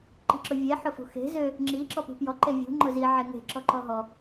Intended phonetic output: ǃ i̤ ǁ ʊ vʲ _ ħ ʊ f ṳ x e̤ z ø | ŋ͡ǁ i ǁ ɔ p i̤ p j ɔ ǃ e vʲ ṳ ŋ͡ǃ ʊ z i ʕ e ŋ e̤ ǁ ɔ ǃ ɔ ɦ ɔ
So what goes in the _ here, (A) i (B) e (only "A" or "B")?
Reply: B